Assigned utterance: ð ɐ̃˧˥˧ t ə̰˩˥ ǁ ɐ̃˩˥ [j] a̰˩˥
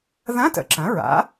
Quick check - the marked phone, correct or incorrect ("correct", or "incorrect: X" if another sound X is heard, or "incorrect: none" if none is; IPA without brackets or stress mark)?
incorrect: ɹ